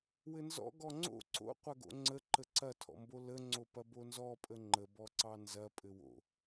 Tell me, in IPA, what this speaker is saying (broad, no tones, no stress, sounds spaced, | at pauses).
w ɘ n z ɔ̰ ɡ ɔ ŋ͡ǀ o̰ ǀ o̰ qʷ ɐ ɡ o̰ ŋ͡ǀ ə ǃ ə ǀ ɐ tʰ ɔ̰ m b o l ə ŋ͡ǀ o p ɐ b o n z ɔ pʼ ə ŋ͡ǃ ə b ɔ ǀ ɑ n z ɐ pʼ ɘ w o̰